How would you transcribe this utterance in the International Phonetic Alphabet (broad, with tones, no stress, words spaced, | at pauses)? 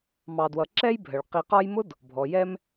mɑ˨dwʌ˨ ǁɛ˦j bʱə˩ɭ qi˨qɒ˦jmʊ˥d | bʱɔ˩jɛ˦m